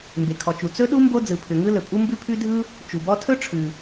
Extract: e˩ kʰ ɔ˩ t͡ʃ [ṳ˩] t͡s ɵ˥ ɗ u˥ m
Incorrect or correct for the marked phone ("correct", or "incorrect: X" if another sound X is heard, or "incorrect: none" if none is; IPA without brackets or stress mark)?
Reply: incorrect: u˩